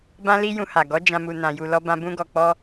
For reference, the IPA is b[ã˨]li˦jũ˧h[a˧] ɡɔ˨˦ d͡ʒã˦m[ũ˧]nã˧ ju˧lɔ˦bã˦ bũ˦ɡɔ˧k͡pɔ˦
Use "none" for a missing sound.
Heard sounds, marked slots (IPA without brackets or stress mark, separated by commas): ã˦, a˨, u˧